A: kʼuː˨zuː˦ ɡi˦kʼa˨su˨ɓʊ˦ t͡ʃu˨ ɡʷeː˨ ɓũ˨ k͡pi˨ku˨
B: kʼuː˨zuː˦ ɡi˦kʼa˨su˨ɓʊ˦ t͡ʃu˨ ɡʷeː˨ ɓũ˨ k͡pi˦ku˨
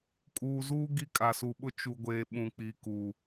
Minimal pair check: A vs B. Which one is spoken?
A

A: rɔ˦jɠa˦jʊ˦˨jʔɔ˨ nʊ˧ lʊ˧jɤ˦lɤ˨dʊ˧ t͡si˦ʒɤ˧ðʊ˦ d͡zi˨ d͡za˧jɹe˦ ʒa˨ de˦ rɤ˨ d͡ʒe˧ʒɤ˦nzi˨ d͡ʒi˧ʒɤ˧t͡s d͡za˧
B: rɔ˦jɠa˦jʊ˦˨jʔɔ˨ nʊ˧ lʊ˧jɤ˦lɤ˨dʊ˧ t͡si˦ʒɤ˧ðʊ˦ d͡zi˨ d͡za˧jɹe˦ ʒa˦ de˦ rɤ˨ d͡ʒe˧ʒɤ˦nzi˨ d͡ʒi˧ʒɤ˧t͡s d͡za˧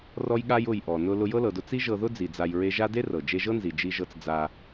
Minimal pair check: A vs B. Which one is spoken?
B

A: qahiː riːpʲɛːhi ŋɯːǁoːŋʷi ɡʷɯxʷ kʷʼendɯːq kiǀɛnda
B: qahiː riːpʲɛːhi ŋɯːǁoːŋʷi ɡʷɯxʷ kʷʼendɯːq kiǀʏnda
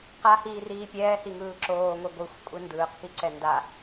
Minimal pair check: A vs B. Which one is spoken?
A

